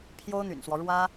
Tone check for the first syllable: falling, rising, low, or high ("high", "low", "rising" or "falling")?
high